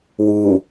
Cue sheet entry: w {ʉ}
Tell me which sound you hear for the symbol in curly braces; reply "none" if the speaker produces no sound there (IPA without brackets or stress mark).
u